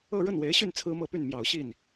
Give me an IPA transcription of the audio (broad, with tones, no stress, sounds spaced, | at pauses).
ɤ˥˧ ɻ ə˥˩ n w e˧˥ ɪ̯ ɕ y˥˩ n t͡sʰ ɹ̩˥ m ɤ˥˧ p y˥˩ n m j ɑ˨˩ ʊ̯ ɕ i˥˩ n